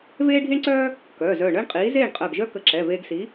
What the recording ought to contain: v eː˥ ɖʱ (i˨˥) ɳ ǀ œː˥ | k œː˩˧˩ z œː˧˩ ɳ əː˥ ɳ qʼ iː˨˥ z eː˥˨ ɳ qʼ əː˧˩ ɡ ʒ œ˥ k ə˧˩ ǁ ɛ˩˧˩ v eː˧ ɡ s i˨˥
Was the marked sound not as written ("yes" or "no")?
yes